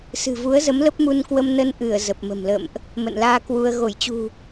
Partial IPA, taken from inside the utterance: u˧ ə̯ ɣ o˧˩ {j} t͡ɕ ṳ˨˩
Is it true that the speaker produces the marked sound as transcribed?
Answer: yes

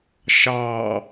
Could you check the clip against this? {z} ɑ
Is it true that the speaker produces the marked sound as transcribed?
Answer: no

